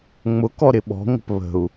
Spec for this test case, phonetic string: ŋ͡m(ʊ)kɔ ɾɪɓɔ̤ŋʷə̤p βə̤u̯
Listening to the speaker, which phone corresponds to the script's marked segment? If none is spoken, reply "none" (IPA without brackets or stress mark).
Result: ʊ